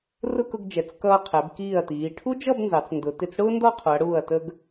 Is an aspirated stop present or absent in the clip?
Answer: present